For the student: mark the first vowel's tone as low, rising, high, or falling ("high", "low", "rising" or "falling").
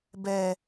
low